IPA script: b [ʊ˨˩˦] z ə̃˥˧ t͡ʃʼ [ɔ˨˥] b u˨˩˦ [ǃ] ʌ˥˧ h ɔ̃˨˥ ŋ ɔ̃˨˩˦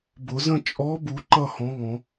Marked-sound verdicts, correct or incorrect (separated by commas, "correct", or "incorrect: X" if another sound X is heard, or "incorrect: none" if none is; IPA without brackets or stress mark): correct, correct, correct